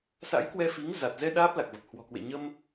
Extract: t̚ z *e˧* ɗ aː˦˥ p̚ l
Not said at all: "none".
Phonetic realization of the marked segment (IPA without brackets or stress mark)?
ɛ˧